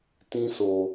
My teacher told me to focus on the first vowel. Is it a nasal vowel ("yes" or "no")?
yes